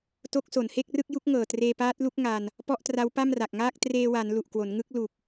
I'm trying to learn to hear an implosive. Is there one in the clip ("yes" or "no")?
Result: no